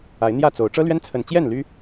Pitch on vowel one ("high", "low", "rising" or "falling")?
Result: rising